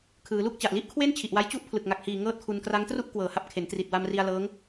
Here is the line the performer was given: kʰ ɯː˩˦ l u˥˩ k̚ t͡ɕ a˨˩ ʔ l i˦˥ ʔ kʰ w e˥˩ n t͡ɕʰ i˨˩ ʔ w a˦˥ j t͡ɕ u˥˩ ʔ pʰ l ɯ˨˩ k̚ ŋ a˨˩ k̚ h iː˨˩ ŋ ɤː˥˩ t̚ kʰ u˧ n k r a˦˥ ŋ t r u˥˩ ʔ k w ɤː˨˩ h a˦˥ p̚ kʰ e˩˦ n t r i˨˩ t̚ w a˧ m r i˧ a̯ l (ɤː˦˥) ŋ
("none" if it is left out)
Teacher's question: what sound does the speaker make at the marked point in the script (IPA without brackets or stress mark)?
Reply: ɤː˦˥